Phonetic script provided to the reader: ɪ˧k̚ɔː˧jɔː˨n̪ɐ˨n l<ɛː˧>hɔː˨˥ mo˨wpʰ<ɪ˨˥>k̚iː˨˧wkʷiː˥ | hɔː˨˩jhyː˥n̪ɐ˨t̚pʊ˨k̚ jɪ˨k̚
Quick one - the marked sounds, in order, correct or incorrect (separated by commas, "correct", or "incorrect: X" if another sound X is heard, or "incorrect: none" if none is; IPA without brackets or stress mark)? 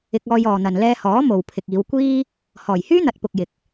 correct, incorrect: ɪ˨